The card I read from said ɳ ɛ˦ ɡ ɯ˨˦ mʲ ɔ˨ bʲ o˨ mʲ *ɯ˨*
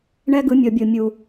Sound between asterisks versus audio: incorrect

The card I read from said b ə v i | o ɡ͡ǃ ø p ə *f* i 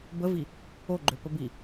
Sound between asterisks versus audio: incorrect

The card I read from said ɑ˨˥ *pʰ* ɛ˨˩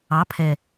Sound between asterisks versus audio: correct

